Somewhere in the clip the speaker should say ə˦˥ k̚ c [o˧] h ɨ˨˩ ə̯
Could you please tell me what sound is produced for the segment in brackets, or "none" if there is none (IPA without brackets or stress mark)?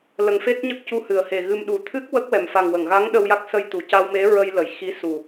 u˧